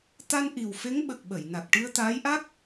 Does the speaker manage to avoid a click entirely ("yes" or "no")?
yes